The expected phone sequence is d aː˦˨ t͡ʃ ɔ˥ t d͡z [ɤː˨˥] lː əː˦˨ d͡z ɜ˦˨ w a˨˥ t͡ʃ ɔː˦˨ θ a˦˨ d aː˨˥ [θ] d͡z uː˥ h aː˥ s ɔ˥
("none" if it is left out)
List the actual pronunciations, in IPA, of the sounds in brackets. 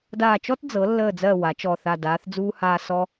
ɤ˨˥, θ

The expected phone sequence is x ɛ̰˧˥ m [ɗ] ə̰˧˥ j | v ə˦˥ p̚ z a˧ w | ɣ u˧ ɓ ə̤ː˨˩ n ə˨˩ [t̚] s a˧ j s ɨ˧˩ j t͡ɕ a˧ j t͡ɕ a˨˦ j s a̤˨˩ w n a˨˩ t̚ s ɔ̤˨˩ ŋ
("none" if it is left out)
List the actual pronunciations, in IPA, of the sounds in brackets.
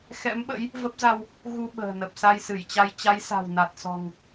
ɓ, p̚

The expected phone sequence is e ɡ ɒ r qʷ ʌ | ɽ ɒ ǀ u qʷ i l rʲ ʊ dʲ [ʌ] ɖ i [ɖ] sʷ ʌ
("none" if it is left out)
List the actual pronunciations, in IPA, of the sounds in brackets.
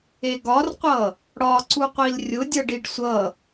ʌ, ɖ

